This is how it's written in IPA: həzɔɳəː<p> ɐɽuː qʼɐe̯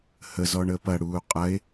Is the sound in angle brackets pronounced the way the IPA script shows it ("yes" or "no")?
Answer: yes